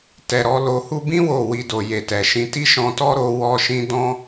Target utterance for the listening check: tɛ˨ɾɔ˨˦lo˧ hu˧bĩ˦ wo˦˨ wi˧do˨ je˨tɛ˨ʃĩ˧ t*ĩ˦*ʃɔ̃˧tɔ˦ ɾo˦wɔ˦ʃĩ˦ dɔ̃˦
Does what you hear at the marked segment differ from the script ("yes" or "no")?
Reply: yes